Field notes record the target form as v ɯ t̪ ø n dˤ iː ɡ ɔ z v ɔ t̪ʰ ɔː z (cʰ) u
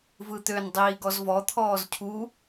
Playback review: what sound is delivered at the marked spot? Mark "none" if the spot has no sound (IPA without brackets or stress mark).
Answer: cʰ